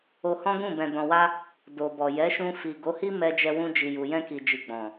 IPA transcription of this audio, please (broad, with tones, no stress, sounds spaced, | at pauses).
o˧ h ɔ̃˦ ɡ ũ˦˨ b ɛ̃˨ d ɔ̃˨ w a˧ | d o˨ b ɔ˨ j ɛ˨˦ ʃ ũ˧ f i˨ ɡ o˨˦ h i˦ m ɛ˧ d͡ʒ ɛ˧ w ũ˧ d͡ʒ i˨ j u˨ j ɛ̃˧ k i˨ d͡ʒ i˨ ɡ͡b ɔ̃˨